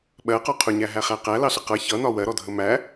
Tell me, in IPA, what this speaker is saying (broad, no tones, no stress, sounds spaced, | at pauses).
ɓ ɜ q ɒ qʰ ʊ ɲ æ ɦ æ χ æ q æ l ɑ ɬ ə q ʌ ç ʌ n ɒ w ɜ ɾ ɔ dʱ ə m æ